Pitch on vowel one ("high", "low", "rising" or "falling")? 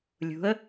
rising